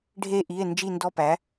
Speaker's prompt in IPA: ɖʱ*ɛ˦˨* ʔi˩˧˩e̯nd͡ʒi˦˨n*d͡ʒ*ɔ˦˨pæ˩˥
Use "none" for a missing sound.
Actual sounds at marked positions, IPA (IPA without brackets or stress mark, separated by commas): e˦˨, d